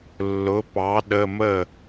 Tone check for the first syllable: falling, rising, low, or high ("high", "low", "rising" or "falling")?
rising